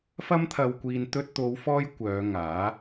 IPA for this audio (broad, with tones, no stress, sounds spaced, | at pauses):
f ɐ˥ m t̪ʰ ɐ˧ w kʷ iː˧ n t̪ ɵ˧ t̚ t̪ o˨˧ w f ɔː˥ j kʷ œː˨˧ ŋ aː˨˥